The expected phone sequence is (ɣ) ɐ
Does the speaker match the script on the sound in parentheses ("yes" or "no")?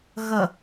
yes